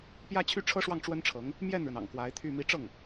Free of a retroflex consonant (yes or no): no